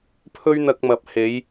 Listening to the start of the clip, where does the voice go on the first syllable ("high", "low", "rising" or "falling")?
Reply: high